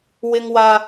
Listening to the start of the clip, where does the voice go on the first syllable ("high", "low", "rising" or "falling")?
high